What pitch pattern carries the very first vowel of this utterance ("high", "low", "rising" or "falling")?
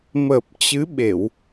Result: low